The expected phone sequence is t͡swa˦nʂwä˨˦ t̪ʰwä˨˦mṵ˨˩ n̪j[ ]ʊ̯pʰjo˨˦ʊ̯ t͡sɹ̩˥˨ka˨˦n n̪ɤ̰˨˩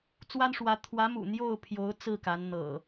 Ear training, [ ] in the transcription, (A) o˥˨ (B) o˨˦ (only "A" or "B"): A